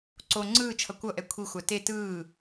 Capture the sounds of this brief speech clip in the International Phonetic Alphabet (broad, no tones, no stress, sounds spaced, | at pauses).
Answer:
ǀ o ŋ͡ǀ ɯː t͡ʃʰ ʌ kʷ ʌ ʔ ɛ kʷʰ i xʷ a t e t ɯː